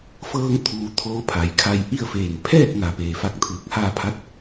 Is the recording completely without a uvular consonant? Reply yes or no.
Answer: yes